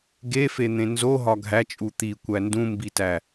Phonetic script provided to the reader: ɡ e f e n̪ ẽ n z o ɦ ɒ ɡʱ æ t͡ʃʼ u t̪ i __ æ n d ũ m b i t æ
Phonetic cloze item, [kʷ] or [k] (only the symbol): kʷ